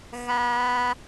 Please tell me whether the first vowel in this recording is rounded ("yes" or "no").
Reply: no